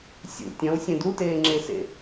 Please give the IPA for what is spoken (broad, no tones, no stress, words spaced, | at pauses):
sʲṵ tʲɐ̃wsʲẽd uteːŋ͡ǁesḛ